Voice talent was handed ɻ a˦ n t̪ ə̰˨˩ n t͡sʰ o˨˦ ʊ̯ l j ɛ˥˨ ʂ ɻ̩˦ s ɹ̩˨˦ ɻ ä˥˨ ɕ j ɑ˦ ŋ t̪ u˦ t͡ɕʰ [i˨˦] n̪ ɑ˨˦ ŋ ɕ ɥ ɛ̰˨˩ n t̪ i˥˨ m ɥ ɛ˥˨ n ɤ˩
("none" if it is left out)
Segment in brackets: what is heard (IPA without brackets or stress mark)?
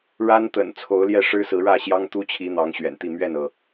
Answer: i˨˦